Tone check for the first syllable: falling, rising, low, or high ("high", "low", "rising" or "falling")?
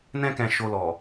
high